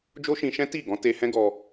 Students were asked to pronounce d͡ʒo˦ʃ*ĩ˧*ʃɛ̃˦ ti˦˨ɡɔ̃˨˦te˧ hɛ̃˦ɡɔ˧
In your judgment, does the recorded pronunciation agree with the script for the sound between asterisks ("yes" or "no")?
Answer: yes